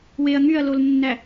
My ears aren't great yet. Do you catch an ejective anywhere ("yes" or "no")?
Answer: no